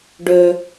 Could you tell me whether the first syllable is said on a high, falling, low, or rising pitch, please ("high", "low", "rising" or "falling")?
high